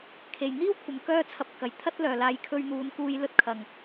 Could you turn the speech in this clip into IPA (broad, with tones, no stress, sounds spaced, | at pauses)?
kʰ e˨ j n̪ iː˥ w kʷʰ ɐ˨˧ m k œː˥ t͡sʰ ɐ˧ p̚ k ɐ˨ j t̪ʰ ɐ˥ t̚ l œː˨ l aː˧ j kʰ ɵ˧ ɥ n̪ uː˨˧ n k uː˧ j l ɵ˧ t̚ kʰ ɐ˨ ŋ